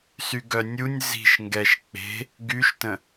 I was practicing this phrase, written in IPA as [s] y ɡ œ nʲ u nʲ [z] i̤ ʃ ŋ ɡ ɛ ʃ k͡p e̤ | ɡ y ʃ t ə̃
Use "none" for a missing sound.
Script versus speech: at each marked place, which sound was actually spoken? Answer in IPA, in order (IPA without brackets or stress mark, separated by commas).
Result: s, z